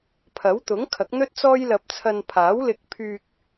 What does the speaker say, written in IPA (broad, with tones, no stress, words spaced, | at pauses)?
pʰɐ˨˥wt̪ʊ˨˥ŋkʰɐ˨˥k̚ n̪ɵ˥t̚t͡sɔː˥jlɐ˧p̚t͡sʰɐ˧n pʰaː˨˥wlɪ˧k̚pʰyː˧k̚